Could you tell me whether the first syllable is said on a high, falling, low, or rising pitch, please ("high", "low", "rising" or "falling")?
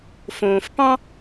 low